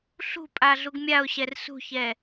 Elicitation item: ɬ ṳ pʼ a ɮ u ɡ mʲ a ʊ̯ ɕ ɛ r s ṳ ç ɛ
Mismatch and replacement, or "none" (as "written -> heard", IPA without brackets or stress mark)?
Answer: none